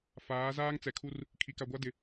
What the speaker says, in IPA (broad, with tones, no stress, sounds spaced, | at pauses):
f aː˨˦ z aː˦ ŋ t͡s ɛ˨ kʰ u˦ r | kʰ i˨ k a˨ ɡʷ a˦ d ɪ˨